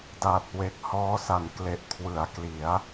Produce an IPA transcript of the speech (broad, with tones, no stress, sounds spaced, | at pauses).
d a˨˩ t̚ w e˨˩ k̚ h ɔː˦˥ s a˨˩ n k l e˨˩ ʔ kʰ w ɯ˩˦ a̯ k l i˩˦ a̯